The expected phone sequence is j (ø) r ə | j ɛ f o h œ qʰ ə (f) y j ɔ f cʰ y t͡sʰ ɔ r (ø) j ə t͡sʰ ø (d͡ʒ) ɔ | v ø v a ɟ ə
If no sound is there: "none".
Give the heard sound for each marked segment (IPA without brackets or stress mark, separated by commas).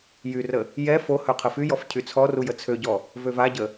y, f, u, ɟ